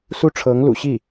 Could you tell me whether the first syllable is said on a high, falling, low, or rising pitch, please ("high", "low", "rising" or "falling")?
falling